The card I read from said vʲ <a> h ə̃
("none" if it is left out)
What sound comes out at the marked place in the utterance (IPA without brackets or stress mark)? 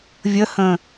ə